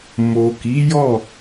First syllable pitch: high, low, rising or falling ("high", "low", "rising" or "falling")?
low